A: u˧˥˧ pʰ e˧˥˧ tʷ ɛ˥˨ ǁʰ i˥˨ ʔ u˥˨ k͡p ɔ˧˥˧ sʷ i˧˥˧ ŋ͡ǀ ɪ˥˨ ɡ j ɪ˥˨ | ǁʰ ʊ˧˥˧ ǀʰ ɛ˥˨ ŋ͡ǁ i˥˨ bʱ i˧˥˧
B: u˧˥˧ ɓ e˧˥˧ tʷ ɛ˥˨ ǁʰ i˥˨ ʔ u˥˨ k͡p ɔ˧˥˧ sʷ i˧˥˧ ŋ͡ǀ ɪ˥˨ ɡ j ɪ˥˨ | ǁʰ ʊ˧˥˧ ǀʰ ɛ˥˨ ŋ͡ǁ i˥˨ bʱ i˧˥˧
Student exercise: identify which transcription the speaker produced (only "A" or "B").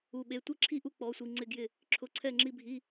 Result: B